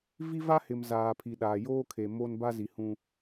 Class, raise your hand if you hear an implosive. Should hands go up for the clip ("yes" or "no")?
yes